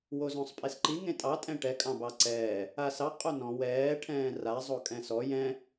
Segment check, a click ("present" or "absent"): present